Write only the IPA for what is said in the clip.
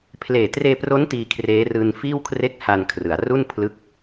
pʰ l eː˨˩ t r eː˧ p r o˦˥ n t iː˧ kʰ r eː˦˥ r ɯː˧ n f iː˥˩ w kʰ r e˥˩ k̚ h a˧ n kʰ r ɯ˩˦ a̯ r u˥˩ n pʰ l ɯ˦˥ k̚

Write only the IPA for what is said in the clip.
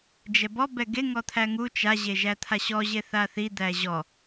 d͡ʒ ɛ b ɔ b ɛ ɡ e ŋ ɔ t̪ʰ æ ŋ u t͡ʃ a ʑ e ʒ æ t̪ʰ a ɕ ɔ ʑ e θ a θ i d̪ æ ʑ ɔ

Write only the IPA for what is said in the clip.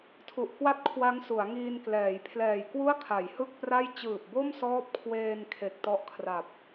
tʰ u˨˩ ʔ k w a˥˩ t̚ kʰ w a˦˥ ŋ s u˩˦ a̯ ŋ iː˧ n k l ɛː˩˦ j pʰ l ɛː˨˩ j k w u˥˩ a̯ kʰ a˩˦ j h ɯ˥˩ k̚ p r a˥˩ j t͡ɕ ɯː˨˩ p̚ b o˥˩ m s ɔː˦˥ p̚ kʰ w eː˧ n kʰ e˨˩ k̚ t ɔ˦˥ ʔ kʰ r a˨˩ p̚

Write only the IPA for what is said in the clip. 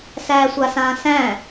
s æː sʷ a s ãː s æ̃

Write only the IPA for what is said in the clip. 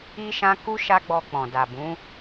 i˦ ʃ ã˦ k u˦ ʃ a˦ ɡ͡b ɔ˧ k͡p ɔ̃˨ d a˨ b ũ˨˦

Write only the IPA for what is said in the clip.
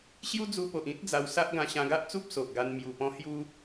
ɕ j u˦ d͡z u˧ p o˨ ʔ ĩ˦ t̚ d͡z a˧ w s a˦ ʔ ɡ ã˧ ɕ ã˧ ɡ a˦ ʔ t͡s u˦ p̚ s o˨ ʔ ɡ a˧ n m j u˨˩ p ɔ̃˧ h j u˦

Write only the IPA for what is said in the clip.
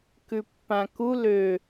k ʉ pː ã k u l ø

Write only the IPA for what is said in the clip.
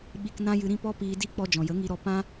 ɓ i˧ k n ã˦ j ɨ˧ ɾ ĩ˦ p ɔ˦ p iː˧ d i˦ k͡p ɔ˧ d͡ʒ ɔ̃˨ j ə˨˦ ŋ i˧ ɾ ɔ˧ p ã˦

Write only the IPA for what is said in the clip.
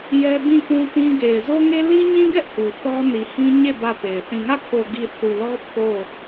j ɛ˦ b ĩ˦˨ k ũ˦ t ĩ˦ ɡ e˨ ɪ̯ z o˦ ŋ e˦ l i˦ ɲ ĩ˦ ɡ ɛ˦ ʔ h u˨ θ ɔ˦ n i˨ h ĩ˦ ɲ e˦˨ b ä˦˨ p e˨ ɪ̯ θ ĩ˨ ŋ ä˦˨ kʰ o˨ ɡ i˨ θ u˨ l ɔ˦ pʰ o˦˨

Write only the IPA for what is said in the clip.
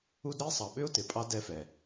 u˦ d ɾ ə˥ ɪ̯ sˤ ɑ˨ ɓ ʏ˥ ʊ̯ t ɪ˩ pʼ ɑ˦ d ɛ˦ f ɛ˨

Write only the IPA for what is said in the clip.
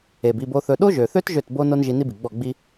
e˨ b i˦˨ b o˧ θ ɵ˧ ɗ o˦ ʒ ø˨ θ ø˦ t ʒ ø˦˨ t b o˦ n o˦ n ʒ i˧ n i˦ b i˨ ɡ͡b ɔ˦˨ ɡ͡b i˦

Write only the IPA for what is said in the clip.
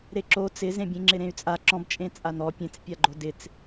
ɾ e ǁ o t͡s ɪ z ẽ bʲ ẽ ŋ͡ǁ ɪ ɾ ẽ y̯ t͡sʼ a ǁ ɔ̃ b t͡ʃʼ ẽ t͡sʼ a n̪ ɔ pʲ ẽ t͡s pʲ a ɡ͡ǃ o d ɪ t͡s

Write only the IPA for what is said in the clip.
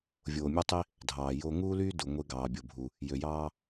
vʲ oː˨ mʲ ø˦ tˤ i˦ | dʱ ɑː˨ j o˦ ŋ uː˦ l yː˦ d u˨ ŋʷ e˦ ɡ ɑː˨ bʲ o˨ bʱ u˨ | j ø˨ j ɑː˦

